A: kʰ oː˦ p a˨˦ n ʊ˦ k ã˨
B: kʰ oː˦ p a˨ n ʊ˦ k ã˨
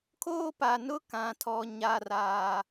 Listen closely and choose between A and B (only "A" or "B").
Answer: B